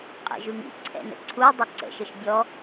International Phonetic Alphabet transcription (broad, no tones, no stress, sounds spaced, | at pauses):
qʼ ɛ̰ ʒ ʉ ŋ ḭ ǀʰ ɛ̰ n ə̰ ǀʰ u dˤ ɘ ǀ ə̰ ʃ ɘ ʃ bʲ ɔ